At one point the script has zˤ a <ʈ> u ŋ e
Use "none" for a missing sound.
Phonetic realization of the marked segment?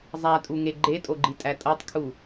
tʼ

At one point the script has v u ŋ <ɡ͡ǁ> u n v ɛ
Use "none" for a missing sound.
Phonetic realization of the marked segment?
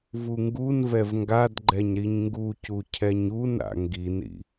ɡ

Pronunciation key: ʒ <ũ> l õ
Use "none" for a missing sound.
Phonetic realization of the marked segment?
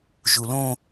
u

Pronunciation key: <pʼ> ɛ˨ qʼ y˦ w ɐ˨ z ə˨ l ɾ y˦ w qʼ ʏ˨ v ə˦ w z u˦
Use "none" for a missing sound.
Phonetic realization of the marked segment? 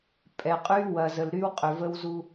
pʼ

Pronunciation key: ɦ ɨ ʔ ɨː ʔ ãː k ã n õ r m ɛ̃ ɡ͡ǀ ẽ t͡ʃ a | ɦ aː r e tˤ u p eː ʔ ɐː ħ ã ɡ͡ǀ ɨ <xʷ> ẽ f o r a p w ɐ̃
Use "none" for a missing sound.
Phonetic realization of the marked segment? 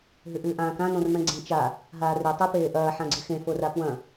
x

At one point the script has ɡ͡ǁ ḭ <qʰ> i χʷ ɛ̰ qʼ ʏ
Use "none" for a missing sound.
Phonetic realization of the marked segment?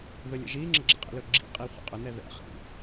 qʼ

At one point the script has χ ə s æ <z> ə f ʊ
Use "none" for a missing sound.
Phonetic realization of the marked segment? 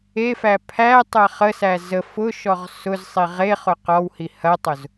z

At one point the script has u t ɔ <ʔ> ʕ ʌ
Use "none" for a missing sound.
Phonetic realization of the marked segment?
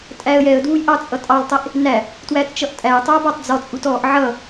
ʔ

